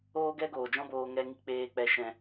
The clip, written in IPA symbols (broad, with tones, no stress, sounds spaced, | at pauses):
oː˧ ɡ ɛ˧ ɡ oː˨ d͡ʒ ɔ̃˧ b oː˧ ŋ ɛ˧ ŋ i˧ k͡p eː˧ k͡p ɛ˧ ʃ ɛ̃˧